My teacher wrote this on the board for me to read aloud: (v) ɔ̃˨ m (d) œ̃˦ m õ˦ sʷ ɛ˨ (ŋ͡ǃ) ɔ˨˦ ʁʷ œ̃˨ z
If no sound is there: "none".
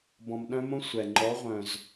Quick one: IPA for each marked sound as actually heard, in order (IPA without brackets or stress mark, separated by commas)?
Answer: b, ɗ, ŋ͡ǃ